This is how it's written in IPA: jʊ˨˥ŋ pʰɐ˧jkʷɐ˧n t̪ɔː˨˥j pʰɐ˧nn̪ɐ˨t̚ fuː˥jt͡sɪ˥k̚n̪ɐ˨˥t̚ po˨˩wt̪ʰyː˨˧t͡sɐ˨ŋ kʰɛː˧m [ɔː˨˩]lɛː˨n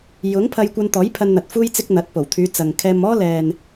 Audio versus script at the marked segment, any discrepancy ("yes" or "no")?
yes